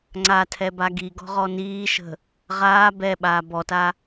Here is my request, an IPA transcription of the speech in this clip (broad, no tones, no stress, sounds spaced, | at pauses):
ŋ͡ǀ a tʰ ɛ b a ɡ i ɡ ɔ̤ ʁ ɔ n iː ʃ ə̤ | ʁ aː b ɛ ɓ aː b ɔ t a